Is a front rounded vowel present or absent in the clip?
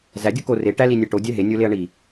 absent